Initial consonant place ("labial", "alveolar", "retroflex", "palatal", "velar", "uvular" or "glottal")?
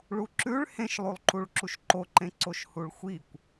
retroflex